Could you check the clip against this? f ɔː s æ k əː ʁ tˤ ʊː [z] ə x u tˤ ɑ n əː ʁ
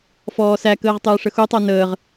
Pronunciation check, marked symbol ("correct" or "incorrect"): incorrect